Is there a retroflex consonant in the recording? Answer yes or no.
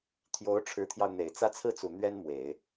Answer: yes